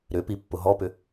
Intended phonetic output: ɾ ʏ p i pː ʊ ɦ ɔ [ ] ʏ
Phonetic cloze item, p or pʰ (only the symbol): p